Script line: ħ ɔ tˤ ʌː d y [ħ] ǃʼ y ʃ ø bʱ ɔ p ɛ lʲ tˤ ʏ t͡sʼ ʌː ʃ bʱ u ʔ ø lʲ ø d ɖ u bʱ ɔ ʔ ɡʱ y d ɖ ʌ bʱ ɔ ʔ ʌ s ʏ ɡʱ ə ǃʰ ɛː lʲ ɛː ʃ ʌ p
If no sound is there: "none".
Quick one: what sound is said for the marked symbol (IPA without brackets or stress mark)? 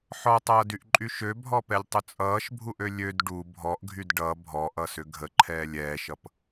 ʔ